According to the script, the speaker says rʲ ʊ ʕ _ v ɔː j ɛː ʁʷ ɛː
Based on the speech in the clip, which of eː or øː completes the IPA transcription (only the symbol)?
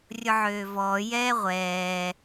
øː